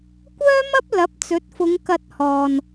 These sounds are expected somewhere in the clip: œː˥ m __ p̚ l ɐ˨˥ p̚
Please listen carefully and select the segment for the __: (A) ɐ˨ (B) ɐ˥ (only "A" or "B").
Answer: B